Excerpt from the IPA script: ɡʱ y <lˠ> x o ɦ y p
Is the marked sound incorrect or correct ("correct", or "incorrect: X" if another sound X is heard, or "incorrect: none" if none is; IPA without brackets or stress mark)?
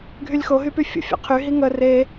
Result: incorrect: lʲ